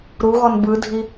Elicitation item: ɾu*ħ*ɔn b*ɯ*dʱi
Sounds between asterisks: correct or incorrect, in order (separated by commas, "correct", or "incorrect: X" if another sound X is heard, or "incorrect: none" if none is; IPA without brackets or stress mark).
incorrect: ɣ, correct